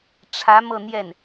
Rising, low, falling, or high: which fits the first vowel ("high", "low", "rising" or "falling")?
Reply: rising